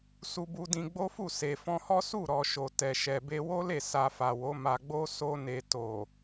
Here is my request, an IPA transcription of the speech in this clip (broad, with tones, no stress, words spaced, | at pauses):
su˧bu˧dĩ˧ ɡ͡bo˦fu˦˨ se˨fɔ̃˧hɔ˦ su˦˨ɾɔ˨ ʃo˨tɛ˨ ʃɛ˨be˧wo˦le˦˨ sa˧fa˨wo˨˦ ma˧ɡ͡bo˦ so˦ne˧ to˨